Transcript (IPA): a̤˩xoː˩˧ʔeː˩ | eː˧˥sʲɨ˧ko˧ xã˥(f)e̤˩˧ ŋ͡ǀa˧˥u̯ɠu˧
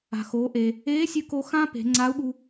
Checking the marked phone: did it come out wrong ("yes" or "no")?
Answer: yes